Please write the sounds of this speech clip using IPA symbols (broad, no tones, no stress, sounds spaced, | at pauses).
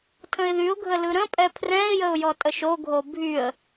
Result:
tʰ ə̃ ɪ̯ ð y ʊ̯ ɡʱ ə l ɯ ɾ ə̃ pʼ ɛ pʰ r ɛ̃ ɪ̯ j ə ʊ̯ j ɔ tʼ ə ʃ o ɡʱ o bʱ y ə̯